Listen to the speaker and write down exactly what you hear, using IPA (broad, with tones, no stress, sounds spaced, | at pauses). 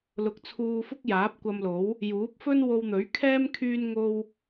l ʊ˨ k̚ t͡sʰ uː˧ f ʊ˥ k̚ j aː˨˥ p̚ kʷ ɐ˧ m l o˨˥ w | j uː˨˥ p̚ f ɵ˥ n w o˧ w n̪ ɵ˨˥ ɥ kʰ ɛː˥ m kʰ yː˥ n ŋ o˥ w